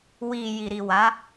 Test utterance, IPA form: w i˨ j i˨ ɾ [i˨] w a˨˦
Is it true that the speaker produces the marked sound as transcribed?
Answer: yes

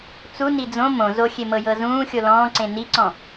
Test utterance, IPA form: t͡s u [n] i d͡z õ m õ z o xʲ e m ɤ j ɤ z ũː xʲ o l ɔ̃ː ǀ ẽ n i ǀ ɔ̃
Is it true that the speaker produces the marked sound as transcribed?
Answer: yes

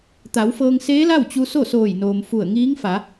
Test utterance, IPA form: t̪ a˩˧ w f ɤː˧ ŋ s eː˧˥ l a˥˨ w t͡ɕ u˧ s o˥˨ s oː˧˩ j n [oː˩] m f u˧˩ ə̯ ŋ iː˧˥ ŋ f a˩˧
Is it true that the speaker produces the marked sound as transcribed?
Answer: yes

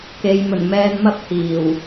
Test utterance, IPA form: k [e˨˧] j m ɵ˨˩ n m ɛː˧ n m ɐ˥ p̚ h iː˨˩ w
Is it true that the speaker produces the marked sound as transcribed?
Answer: yes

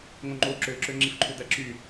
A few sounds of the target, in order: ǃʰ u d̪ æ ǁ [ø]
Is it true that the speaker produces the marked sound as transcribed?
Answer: no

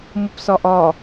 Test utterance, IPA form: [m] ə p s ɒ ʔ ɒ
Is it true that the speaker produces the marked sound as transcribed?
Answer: yes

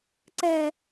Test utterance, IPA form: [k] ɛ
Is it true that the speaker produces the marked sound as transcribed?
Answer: no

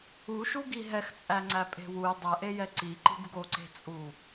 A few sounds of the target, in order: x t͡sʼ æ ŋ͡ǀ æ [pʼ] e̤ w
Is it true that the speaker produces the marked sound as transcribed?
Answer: yes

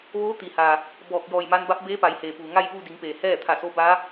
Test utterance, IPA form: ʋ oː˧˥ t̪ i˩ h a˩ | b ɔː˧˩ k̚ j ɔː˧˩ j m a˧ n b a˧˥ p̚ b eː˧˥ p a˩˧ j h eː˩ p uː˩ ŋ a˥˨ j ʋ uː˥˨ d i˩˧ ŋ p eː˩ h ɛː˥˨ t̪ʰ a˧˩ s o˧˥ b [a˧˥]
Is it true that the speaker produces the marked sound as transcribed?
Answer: yes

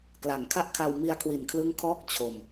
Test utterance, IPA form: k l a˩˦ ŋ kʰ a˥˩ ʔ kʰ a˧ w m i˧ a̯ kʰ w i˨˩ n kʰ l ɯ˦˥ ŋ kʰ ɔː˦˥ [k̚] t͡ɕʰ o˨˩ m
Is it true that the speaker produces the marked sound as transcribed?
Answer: yes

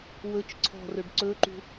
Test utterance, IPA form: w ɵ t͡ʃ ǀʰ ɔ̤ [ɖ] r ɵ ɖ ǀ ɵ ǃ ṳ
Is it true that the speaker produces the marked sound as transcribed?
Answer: no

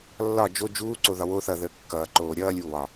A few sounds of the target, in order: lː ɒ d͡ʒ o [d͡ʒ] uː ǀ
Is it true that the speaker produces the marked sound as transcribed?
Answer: yes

